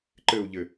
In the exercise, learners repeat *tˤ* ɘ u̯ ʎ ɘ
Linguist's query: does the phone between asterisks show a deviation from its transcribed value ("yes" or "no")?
yes